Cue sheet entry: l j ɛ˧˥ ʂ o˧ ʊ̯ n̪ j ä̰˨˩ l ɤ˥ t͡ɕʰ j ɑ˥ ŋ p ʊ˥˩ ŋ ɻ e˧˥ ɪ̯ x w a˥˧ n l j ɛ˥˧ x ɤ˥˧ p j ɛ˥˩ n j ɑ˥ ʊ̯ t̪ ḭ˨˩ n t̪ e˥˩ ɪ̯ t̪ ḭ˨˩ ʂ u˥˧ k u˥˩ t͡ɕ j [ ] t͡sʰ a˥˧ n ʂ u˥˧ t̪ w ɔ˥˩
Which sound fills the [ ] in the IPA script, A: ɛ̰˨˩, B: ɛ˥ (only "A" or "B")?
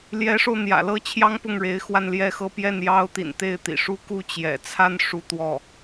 A